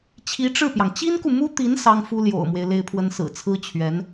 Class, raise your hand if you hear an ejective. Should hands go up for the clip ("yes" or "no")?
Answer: no